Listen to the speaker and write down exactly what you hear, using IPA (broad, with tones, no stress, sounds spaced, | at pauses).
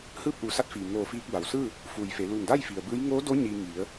h ɯː˥˨ p̚ ʔ uː˩˧ s a˧˥ t̚ f iː˩ ŋ oː˧˩ f iː˧ k̚ b a˩ w s ɯː˥˨ | f uː˩ j f e˩˧ l uː˧˩ ŋ d a˥˨ j f i˩ ə̯ b ɯː˧˥ j ŋ oː˧˥ d o˧˥ ɲ iː˧ ŋ i˩˧ ə̯